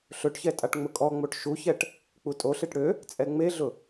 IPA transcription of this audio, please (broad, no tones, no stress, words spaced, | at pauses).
ɬɵʈçɛ tʼaʈŋ͡mʊkʼɔŋ͡moʈ ʃuçɛʈ | k͡putʼoɬeʈ ɽø | t͡sʼɛŋ͡meɮʊ